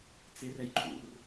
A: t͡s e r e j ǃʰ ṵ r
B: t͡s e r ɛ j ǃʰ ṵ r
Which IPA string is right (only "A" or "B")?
B